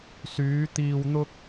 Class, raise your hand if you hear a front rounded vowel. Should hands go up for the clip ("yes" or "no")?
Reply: yes